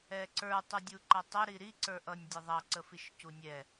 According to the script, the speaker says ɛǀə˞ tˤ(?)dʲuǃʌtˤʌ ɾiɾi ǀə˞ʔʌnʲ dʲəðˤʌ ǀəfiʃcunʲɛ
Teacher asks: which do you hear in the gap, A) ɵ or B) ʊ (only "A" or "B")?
B